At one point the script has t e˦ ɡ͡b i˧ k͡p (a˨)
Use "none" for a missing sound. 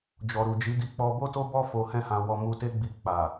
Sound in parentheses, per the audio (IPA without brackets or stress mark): a˨